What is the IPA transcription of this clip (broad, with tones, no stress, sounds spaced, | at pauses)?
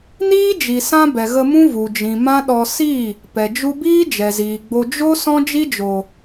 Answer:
n iː˦ d͡ʒ i˨ s ã˦ b ɛ˨ ɣ ə˧ m ũ˦ v u˨ d͡ʒ ĩ˨ m ã˦ ɗ ɔ˧ s i˦˨ | p ɛ˨ d͡ʒ u˧ b iː˦ d͡ʒ ɛ˨ z iː˨ ɡ͡b o˧ d͡ʒ o˦ s ɔ̃˦ d͡ʒ i˦ d͡ʒ o˨